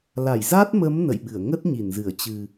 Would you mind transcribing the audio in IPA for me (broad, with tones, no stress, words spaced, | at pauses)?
la˧˩jza˦˥t̚mə˨˦m nə̰˧˨jɓɨ˧˩ə̯ ŋə˦˥t̚ɲi˧˩nzɨ˧˩ə̯ t͡ɕɨ˨˩